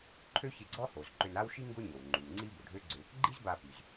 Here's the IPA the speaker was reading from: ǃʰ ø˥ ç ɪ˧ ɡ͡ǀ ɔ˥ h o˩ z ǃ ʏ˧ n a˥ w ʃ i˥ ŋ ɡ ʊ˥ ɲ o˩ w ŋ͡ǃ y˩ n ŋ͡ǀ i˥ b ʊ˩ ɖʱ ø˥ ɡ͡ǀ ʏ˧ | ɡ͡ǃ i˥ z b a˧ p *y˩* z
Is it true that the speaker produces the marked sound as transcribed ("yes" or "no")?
yes